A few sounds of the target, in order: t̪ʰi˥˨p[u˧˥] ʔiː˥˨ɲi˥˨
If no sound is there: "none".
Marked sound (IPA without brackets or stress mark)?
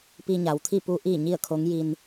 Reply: u˧˥